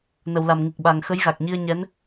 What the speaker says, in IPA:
nə˨˩˨wla˨˩mŋɨ˨˩k̚ɓa˨˩ŋ xə˧˥jɣa˨˩k̚ɲi˧ə̯ ɲɛ˧˥n

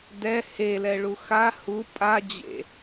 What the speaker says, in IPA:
dɛ helɛɭu xa hu pʼa d͡ʑḛ

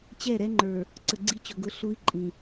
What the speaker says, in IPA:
t͡ɕɛ˦˨ɾɛ˦ŋ͡ǃə˞˨ | ǀə˨ɡ͡ǀi˦t͡ɕʊ˨ɡʊ˦ ɬu˦i̯ ǃʼĩ˨

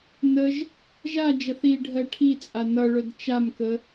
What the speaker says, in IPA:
nəʒ | ʒad͡ʒʌθ iɖʱɜ ʈʰit͡sʼa nʌɭœd t͡ʃamkə

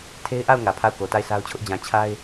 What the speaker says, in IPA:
tʰe˦ɪ̯ʔa˦˨ʊ̯ ŋä˨pʰa˦˨ʊ̯ko˨ ta˦˨ɪ̯sʰa˦ʊ̯t͡ɕʰʊ˦ʔ d͡ʑã˨ t͡ɕʰa˦ɪ̯

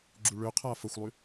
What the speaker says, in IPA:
ɡ͡ǁuɭøqʰa fəxʷlˠy

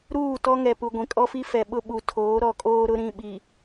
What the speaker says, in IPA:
ɾuː˦˨tɔ˦ ŋɛ˨pu˨ ɡʷĩ˨kʼɔ˦fi˦fɛ˨ ɓʊ˦ ɓu˨tʰoː˨˦ ɾɔ˨kʼoː˦ ɾʊ˦ɾĩ˦˨ɓi˨

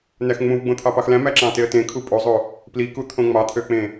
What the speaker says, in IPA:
næxŋ͡mũv ɡ͡bõt̪ʰɑpɑxlæ̃ mæǁɑ̃teə̯tẽ kʰupʼozˤo | plikut̪ʰõ ŋ͡mɑt̪ʰøk͡pẽ

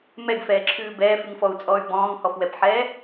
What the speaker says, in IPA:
mɛɡfɛːǁʰʉː bɛːfʉŋfɔu̯t͡sʼɔːy̯ bɔ̃ːŋhɔfwɛpħɛː

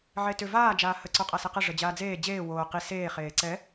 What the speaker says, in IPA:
ʕetʏ vaːd͡ʒaː hə ǀoqʼasɛqə ʐəd͡ʑaːd͡zeː d͡ʑeː woː qi seːχeː ǀɛ

